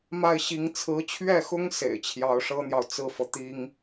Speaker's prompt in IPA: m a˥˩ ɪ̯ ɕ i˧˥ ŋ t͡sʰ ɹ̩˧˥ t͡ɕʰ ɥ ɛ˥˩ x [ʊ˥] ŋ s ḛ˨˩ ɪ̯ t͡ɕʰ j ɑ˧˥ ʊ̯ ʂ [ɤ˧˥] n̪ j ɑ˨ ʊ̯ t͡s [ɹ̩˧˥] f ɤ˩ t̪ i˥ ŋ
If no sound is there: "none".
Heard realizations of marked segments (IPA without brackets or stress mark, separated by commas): ʊ˥, ɤ˥, ɹ̩˥˩